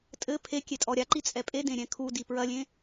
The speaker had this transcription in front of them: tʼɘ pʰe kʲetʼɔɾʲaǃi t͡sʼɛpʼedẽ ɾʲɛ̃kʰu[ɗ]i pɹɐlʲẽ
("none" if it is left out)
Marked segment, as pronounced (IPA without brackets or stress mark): d